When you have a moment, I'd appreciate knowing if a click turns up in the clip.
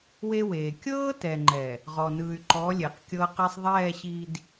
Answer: yes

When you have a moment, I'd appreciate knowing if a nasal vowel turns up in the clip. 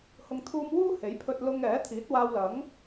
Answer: no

